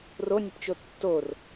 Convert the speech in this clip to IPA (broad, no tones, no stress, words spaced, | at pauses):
ronʲʊpt͡ʃo tːor